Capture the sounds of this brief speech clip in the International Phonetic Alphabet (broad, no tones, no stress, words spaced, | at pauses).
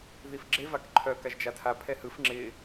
ðifɡ͡ǁe vakǃʰœ kaʒd͡ʒatʰa pʰɛhɯf ŋ͡ǁɪ